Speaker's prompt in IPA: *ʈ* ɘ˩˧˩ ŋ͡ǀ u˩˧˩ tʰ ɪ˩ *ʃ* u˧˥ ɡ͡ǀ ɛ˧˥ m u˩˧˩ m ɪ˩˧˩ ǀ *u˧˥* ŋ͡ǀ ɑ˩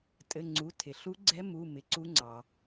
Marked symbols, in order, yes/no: no, no, yes

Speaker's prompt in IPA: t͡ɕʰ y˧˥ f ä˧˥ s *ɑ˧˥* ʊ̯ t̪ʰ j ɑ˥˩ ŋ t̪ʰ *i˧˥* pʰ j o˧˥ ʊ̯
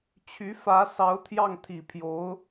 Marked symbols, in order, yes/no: yes, no

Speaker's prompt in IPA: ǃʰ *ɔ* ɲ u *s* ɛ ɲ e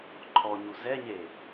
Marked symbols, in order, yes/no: yes, no

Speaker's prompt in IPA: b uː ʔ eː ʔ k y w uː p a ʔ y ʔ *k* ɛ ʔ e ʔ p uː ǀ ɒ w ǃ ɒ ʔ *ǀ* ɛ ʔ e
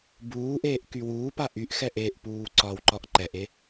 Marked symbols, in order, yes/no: no, no

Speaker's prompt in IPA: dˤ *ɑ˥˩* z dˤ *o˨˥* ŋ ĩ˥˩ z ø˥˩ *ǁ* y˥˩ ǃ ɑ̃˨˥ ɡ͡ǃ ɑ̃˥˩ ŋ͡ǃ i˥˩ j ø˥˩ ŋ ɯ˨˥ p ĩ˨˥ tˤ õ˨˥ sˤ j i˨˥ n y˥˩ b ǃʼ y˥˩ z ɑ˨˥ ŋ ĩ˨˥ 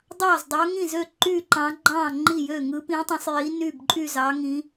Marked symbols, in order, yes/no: yes, yes, no

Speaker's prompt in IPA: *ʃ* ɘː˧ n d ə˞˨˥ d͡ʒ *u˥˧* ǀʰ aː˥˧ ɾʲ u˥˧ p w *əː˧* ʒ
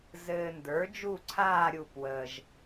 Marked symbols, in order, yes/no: no, yes, yes

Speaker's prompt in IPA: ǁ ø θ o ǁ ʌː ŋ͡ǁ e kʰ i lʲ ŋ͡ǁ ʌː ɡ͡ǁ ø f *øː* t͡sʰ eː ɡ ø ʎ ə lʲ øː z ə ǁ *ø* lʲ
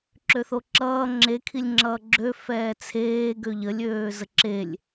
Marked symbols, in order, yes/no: no, no

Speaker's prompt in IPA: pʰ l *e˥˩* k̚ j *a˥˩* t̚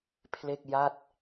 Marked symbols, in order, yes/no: yes, yes

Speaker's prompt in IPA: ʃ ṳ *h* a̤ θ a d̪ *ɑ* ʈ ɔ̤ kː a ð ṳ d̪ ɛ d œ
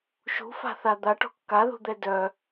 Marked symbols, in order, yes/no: no, no

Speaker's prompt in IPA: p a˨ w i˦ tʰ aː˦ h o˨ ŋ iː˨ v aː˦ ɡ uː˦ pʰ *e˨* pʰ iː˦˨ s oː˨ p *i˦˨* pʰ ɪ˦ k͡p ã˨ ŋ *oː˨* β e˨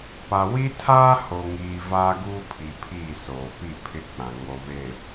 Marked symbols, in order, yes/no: no, yes, no

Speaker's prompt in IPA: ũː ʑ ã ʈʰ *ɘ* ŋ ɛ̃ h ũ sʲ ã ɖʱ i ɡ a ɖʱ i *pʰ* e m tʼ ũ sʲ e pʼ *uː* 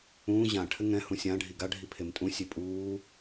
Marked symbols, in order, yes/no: yes, yes, yes

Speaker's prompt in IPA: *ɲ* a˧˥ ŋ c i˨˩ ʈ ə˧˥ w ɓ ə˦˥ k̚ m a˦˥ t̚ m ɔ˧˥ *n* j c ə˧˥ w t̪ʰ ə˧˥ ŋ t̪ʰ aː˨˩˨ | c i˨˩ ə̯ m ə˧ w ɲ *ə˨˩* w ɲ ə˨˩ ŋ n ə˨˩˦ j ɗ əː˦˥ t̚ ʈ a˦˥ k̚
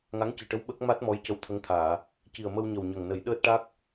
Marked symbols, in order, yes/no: no, no, yes

